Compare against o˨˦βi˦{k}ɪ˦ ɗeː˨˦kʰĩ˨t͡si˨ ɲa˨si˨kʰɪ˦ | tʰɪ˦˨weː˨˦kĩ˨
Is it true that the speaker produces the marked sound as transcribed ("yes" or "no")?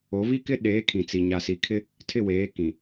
yes